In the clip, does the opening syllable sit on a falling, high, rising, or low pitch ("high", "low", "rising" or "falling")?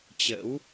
rising